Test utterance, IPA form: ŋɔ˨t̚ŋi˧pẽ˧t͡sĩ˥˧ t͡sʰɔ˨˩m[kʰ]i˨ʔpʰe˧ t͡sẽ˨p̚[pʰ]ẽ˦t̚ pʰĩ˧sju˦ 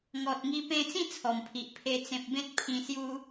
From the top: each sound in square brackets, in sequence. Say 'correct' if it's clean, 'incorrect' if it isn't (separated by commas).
incorrect, incorrect